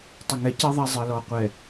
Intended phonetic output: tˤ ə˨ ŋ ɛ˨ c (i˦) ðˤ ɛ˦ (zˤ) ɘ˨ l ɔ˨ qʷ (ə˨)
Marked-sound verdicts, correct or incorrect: correct, correct, incorrect

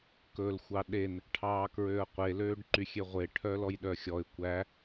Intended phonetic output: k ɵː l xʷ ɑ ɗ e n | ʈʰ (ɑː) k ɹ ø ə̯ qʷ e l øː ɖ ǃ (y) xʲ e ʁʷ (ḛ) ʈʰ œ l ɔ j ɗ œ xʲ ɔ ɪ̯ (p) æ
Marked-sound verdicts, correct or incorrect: correct, correct, incorrect, incorrect

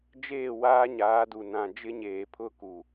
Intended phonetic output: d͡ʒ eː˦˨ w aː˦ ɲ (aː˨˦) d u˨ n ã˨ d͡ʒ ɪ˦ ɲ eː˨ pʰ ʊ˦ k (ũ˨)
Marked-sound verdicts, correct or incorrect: correct, incorrect

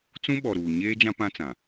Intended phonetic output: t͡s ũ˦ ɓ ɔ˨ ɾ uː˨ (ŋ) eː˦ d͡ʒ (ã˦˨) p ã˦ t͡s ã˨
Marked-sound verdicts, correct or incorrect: incorrect, incorrect

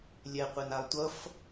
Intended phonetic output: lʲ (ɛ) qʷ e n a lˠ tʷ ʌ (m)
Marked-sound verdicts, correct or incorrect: correct, incorrect

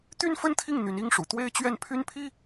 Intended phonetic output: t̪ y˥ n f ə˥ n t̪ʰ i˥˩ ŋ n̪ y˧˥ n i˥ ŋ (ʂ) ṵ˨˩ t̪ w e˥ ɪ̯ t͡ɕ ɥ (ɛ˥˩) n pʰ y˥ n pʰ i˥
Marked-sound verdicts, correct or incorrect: correct, correct

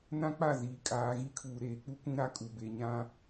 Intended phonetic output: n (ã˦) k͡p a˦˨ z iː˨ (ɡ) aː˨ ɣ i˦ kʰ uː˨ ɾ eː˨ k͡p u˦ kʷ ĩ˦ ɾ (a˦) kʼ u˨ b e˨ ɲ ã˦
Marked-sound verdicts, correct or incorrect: correct, incorrect, correct

